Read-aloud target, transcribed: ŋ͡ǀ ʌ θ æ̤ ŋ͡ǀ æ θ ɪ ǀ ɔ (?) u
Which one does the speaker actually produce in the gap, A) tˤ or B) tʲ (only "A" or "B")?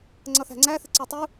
A